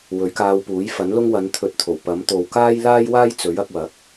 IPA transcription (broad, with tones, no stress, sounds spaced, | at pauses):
w ɵ˨˥ ɥ k aː˧ w p uː˨˥ j f ɐ˨˥ n l ʊ˥ ŋ w ɐ˨˧ n t̪ʰ ɵ˨˥ t̚ t̪ʰ o˨˩ w p ɐ˨˥ m t̪ o˨ w k aː˥ j l aː˥ j w aː˥ j t͡s ɵ˨˥ ɥ ɐ˧ k̚ w ɐ˨˥ k̚